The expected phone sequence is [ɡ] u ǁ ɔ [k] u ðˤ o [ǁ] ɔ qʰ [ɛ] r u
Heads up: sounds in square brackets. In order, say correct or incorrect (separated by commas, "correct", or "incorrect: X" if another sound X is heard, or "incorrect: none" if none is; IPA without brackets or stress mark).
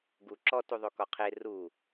correct, incorrect: t, incorrect: k, incorrect: e